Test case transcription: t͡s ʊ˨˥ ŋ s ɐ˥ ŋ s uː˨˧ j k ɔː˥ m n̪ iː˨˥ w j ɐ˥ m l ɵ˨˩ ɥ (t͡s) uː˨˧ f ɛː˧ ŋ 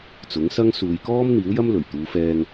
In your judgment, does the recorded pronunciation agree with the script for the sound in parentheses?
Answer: no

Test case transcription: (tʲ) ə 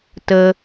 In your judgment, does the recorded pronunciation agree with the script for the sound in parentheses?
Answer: no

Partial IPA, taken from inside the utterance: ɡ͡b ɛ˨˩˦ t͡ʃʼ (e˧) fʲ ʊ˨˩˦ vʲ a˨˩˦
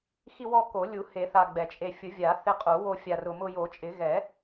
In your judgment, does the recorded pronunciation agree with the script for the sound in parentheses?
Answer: yes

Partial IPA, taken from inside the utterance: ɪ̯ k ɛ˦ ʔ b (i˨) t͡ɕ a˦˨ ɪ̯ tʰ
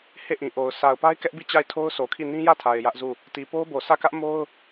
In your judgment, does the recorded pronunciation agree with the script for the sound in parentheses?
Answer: no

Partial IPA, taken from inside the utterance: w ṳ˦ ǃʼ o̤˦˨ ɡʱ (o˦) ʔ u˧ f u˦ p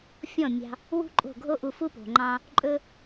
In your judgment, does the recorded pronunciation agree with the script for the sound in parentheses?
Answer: yes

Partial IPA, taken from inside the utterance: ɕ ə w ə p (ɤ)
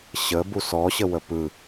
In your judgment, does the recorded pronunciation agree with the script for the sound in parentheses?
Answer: no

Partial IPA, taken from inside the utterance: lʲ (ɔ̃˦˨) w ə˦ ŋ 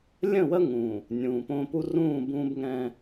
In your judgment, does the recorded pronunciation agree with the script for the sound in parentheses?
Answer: no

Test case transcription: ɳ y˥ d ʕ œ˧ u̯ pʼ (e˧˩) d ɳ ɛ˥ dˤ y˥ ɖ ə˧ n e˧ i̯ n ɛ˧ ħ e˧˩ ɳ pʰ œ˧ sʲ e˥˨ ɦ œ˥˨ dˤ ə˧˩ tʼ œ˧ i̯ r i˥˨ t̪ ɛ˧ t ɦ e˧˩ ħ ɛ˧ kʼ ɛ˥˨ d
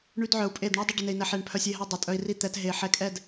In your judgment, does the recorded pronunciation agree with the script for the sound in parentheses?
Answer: no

